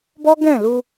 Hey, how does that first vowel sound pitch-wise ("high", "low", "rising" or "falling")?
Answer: high